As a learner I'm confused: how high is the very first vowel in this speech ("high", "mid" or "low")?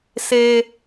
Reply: mid